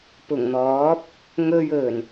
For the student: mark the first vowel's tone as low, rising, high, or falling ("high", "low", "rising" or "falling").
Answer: low